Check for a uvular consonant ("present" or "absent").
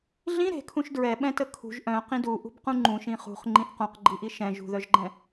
present